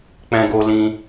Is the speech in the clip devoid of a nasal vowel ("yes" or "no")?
no